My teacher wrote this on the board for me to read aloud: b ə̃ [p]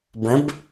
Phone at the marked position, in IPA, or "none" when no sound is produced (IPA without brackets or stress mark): b